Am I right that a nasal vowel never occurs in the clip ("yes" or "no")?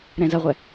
no